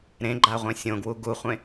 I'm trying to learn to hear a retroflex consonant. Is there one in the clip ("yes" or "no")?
no